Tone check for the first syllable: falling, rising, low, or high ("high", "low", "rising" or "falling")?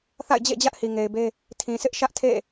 falling